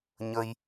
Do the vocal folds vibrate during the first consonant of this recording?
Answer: yes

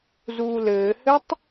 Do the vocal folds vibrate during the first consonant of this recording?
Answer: yes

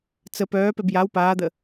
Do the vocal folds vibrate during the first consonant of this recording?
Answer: no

